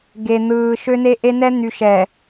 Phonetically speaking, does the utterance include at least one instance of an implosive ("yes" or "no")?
no